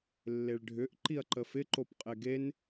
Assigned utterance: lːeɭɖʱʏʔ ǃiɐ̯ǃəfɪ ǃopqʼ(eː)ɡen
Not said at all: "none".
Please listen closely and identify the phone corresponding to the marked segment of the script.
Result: e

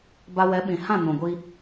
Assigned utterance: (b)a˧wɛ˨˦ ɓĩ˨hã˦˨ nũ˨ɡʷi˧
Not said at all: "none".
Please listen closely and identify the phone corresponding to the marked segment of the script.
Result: b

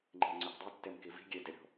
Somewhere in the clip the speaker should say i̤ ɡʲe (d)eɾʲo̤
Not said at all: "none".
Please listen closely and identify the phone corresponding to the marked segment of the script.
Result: d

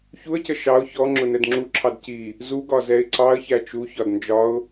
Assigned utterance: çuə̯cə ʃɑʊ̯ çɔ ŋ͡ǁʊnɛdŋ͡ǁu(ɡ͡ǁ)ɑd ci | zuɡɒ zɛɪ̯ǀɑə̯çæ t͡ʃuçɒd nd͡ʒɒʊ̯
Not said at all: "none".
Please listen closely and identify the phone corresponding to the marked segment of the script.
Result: ǁʰ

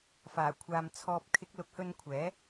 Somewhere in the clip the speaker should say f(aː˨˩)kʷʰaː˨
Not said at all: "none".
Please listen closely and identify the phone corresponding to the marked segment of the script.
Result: aː˨˩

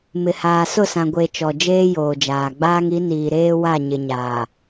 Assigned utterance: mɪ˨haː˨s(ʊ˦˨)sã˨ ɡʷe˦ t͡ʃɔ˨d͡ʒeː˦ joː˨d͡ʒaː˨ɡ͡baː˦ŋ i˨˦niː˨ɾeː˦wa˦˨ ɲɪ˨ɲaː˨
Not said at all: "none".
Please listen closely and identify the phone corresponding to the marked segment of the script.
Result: ʊ˦˨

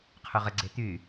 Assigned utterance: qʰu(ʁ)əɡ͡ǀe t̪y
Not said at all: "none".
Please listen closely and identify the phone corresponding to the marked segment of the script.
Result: ʁ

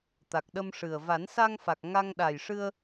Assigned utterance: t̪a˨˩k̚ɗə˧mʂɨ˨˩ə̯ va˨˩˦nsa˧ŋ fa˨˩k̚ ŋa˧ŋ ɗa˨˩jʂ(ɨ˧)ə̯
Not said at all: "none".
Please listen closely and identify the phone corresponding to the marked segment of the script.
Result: ɨ˧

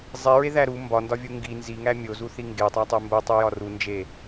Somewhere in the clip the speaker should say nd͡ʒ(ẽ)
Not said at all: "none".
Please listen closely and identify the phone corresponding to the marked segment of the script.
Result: e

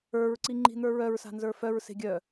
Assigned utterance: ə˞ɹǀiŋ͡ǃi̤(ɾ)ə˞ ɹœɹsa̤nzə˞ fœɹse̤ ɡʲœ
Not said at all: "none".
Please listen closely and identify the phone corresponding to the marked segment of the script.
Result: n̪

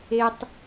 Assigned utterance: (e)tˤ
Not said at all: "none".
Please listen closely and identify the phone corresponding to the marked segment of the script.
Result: e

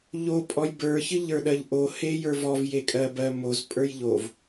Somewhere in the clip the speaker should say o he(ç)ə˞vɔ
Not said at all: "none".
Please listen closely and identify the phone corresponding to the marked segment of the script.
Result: j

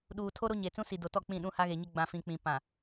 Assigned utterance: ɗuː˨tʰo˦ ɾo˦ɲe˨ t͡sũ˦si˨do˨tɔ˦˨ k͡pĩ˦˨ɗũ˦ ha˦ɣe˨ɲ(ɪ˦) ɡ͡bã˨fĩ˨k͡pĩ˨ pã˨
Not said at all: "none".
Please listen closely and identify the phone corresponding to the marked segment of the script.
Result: ɪ˦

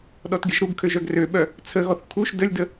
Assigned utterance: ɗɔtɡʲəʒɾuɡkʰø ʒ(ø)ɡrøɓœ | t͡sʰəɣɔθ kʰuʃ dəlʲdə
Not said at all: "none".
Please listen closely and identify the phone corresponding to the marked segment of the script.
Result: œ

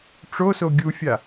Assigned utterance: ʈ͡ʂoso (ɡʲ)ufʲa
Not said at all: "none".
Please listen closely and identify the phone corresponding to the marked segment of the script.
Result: ɡʲ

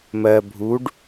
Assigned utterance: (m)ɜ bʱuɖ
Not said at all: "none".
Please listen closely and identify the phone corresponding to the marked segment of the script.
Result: m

